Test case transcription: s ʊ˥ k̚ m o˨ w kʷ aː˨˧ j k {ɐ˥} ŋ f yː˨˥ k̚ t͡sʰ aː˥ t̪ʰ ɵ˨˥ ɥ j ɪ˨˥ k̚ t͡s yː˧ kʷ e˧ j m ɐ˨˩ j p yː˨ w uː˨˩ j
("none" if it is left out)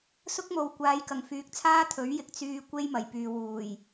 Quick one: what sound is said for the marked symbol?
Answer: ɐ˨˩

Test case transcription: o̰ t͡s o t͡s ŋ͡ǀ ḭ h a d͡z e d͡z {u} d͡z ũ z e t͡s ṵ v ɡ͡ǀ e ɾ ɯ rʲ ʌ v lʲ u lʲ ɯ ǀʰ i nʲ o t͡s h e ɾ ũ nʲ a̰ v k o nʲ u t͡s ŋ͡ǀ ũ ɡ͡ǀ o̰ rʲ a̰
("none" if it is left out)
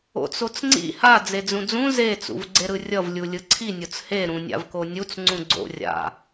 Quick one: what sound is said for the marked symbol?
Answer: ũ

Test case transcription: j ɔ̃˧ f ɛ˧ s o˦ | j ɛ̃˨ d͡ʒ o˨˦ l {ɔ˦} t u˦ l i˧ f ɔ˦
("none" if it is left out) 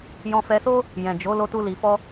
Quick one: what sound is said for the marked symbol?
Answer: o˦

